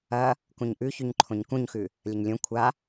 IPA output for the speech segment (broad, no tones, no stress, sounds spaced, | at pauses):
ɐ | k ũ ɲ ʔ ʉ ç ʉ ɲ ǃʰ õ ɲ k ũ ɲ x ʉ | lʲ ɐ ɲ lʲ õ kʷʰ a